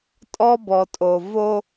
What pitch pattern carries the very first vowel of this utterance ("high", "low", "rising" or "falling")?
high